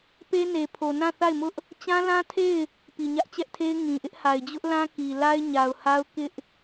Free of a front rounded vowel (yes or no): yes